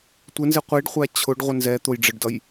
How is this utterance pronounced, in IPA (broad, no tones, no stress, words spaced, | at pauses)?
tʷɪnzɪ qʷiɖχʷæ t͡ɕʰʊɖʁʷɪ nzɛ t̪ʊj ɖ͡ʐəɖdʌj